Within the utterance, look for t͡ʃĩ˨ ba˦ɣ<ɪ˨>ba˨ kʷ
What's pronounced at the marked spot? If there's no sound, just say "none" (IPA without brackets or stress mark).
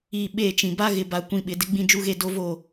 ɪ˨